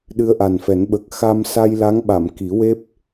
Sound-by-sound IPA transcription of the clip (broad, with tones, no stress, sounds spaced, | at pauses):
ɗ ɨ˧ ə̯ ʔ a˨˩ n f ɛ˨˩˦ n ɓ ə˨˩ k̚ x a˧ m s a˧ j l a˧˥ ŋ ɓ a˨˩˨ m k i˨˩˦ w e˦˥ p̚